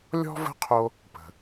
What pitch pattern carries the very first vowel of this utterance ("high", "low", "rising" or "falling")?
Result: high